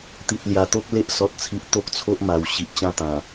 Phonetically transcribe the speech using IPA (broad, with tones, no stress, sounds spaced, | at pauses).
t̪ i˨ t̚ l j a˨˩ t̪ o˦ k̚ l e˦ ʔ s ɔ˨ t̚ t͡sʰ i˨ ʔ t̪ o˦ k̚ t͡sʰ o˦ ʔ m a˨˩ w ɕ i˨ ʔ t͡ɕ ã˥˧ t̪ ã˨˩